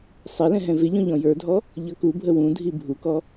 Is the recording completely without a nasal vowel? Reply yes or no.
no